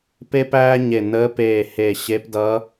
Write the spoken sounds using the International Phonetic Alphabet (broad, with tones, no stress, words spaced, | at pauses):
pe˥pæː˥ɲe˧˩ nəː˧˥peː˧˩ he˧˩ɕe˧˥pdʌ˧˥